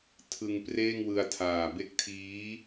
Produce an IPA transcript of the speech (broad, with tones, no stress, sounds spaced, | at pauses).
tʰ ɯ˧ ŋ p r eː˥˩ ŋ w ɯ˧ a̯ tʰ aː˨˩ b e˦˥ k̚ tʰ iː˦˥